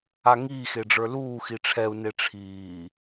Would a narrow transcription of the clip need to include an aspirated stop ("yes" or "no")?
yes